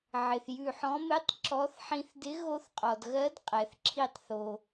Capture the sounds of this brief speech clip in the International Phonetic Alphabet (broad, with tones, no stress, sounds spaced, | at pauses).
ʕ ɪ˩ θ j ʉ˧˩ ħ ɔ̃˨˥ m ɪ˧˥˧ tˤ ǁ ɔ˨˥ θ ħ ĩ˧ θ d ɪ˨˥ ɣ o˧ θ qʼ ɔ˩ d ɣ ɜ˨˥ d qʼ ɛ˩ θ ǁʰ i˧˩ tˤ θ o˩